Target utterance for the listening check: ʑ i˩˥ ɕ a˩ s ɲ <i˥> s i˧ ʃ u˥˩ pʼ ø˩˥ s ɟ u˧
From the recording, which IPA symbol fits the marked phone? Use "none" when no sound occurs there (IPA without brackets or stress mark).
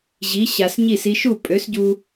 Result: i˥˩